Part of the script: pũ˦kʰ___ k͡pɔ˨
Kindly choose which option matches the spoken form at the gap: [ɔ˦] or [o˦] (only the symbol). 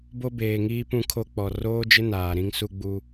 o˦